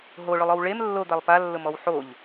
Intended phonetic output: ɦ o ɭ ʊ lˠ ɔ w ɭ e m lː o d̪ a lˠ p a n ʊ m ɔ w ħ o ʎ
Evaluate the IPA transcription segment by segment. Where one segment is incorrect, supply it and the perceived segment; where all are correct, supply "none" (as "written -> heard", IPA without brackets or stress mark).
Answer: n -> lː